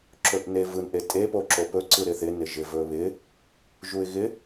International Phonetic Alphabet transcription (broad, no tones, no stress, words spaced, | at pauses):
ǁɵʔnevɯnʔe tʼepo ǁopɵǀɯɾɪ θɪ nɪʒɪvɵβɪ | ʒuɪ̯ɣɪ